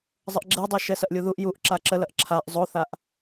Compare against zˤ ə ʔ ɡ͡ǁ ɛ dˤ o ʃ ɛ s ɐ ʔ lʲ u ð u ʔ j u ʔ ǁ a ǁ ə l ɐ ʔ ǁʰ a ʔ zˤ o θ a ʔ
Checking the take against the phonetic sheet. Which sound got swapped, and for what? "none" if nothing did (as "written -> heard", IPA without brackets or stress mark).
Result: none